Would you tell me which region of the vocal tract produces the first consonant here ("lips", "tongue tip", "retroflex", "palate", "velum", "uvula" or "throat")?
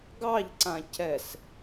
velum